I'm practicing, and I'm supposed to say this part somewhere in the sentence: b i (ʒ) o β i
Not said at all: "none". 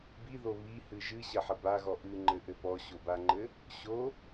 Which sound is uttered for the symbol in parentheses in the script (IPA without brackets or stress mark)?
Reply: ð